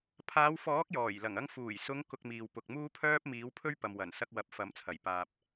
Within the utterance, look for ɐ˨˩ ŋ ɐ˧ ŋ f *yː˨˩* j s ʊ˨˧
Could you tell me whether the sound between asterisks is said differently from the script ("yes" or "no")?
yes